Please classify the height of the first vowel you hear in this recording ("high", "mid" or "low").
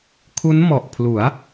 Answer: high